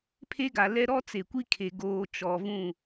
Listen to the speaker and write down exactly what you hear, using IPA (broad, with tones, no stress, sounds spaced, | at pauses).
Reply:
pʰ e˦ ɡ a˨ l ɛ˦ ɾ ɔ˦ t͡s e˨ kʷ i˦ kʰ e˨ ɡ oː˨ t͡ʃ ɔ˨ v ũ˦˨